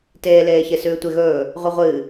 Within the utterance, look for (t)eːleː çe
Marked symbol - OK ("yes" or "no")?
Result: yes